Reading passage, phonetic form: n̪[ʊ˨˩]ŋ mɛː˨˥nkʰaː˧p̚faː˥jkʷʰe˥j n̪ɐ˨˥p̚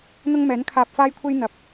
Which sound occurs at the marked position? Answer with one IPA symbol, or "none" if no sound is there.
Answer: ʊ˥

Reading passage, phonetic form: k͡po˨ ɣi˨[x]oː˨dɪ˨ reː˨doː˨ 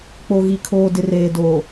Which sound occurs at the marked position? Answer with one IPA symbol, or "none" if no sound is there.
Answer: kʰ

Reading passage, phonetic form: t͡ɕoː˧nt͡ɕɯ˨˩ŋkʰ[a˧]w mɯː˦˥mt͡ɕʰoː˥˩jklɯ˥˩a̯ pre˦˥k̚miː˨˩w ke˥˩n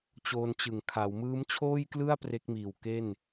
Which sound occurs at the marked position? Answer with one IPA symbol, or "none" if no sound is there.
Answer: a˩˦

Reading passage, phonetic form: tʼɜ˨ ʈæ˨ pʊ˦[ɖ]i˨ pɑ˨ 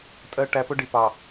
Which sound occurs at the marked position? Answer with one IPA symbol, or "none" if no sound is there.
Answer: ɖ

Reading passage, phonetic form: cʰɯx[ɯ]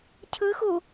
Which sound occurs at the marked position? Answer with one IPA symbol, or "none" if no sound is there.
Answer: u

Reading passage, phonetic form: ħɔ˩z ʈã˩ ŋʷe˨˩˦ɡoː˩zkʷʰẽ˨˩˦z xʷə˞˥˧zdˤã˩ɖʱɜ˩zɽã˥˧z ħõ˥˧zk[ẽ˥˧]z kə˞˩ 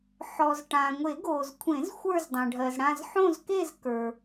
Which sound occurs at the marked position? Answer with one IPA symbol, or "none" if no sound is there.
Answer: e˥˧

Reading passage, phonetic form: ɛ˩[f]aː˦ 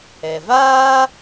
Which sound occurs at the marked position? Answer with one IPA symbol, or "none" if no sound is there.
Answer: v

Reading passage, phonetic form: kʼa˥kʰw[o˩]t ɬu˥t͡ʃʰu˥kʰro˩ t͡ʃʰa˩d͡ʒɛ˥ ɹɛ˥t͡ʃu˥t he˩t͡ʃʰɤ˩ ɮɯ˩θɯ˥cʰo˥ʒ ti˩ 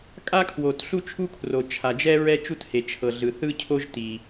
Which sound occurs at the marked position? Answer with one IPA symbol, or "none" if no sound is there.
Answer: o˩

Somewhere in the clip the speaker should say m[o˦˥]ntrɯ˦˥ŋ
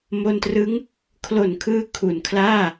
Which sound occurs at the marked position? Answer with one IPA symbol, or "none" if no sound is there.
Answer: o˧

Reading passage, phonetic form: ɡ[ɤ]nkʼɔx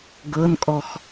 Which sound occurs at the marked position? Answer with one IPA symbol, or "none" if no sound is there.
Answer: ɤ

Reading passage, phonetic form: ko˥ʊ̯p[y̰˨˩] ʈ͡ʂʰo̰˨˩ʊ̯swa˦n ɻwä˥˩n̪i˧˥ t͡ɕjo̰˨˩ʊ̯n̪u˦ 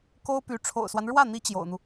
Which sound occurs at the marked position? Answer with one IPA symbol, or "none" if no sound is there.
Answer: y˧˥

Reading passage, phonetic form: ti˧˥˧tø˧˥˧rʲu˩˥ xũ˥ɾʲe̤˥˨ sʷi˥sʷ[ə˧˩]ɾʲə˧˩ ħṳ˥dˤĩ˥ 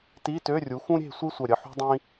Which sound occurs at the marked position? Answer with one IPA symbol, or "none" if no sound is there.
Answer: œ˧˩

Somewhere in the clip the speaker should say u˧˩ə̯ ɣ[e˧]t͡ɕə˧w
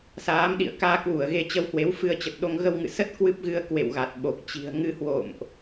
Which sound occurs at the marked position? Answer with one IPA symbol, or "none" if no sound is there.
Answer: e˧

